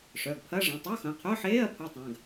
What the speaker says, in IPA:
ʂœ˩˧˩ɡpʰɐ˧˥˧ʐɐ̃˩˧˩ tˤo˧˥˧xɐ̃˩˧˩qʰœ˧˥˧ħeː˧˥˧ɐ̯ pʰo˧˥˧tˤɐ̃ː˩˧˩ɡ

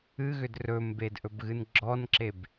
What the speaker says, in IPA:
ɨɣʏd rɵmbed ʔɵbɣɨnɡ͡ǁɔnǁeb

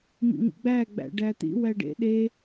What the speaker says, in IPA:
mḭŋḭɡ͡bæ ɡ͡bæ̰ɖæt̪ḭ wæɖḛɗe

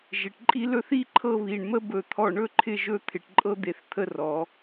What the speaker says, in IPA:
ʒɪ˩˧ʈǃʼi˥lɵ˥θ i˥ǃʰɤ˥˧ βi˧˩ɳmə˥ bɵ˧˩t̪ʰɔ˧˩ɳɵ˥˧ ǃʰɪ˥˧ʒɵ˥˧ t̪ʰɪ˩˧ʈǃʼɤ˥d̪e˧˩θ t̪ʰə˥˧rɔ˩˧

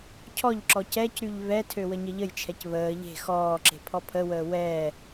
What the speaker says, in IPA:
cʰɔʎǁɔc ɛcɾyʎ βɛtʰø wəɲəʎəjt͡ʃʰɛc βəː ʎe̤ xɔːǁe̤ pʰɔpʰəwəː wɛː

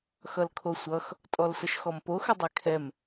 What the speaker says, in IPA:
xʌlkʰosʷʌx | tʼɔlsəʃxɔmpox ədˤɛkʰɛm

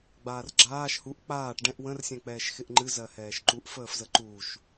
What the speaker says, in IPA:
ɡ͡baːrɡ͡ǁaːʃ huʔ k͡paːʈ ɖɛ̃ʔ wə̃r sʲɛ̃k͡pɛːʃxɪʔŋ͡ǃɨ zɜhɛːʃǃuʔ fəːfzəǃuːʃ

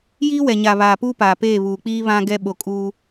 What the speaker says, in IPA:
jiː˦wɛ˨ɲa˨ βaː˨puː˦paː˨ peː˦˨βuː˨k͡piː˦ βã˦ ɡɛ˦ɓo˨ kʼuː˦

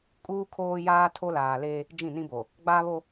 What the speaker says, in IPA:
kʼuː˦ kʰoː˦jaː˦ tʰo˦laː˨le˦ | d͡ʒĩ˦˨nĩ˦bo˨ | ɡ͡baː˦βo˦

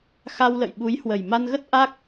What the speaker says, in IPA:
xa˧wlə̰˧˨jɓu˨˦jhwə˨˩j ma˧nɣə˦˥t̚ ʔa˦˥k̚

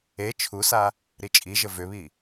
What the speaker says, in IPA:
e t͡ʃʰusa | ɾit͡ʃʼiʒə vʏβi

